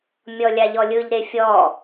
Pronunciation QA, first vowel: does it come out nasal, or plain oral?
oral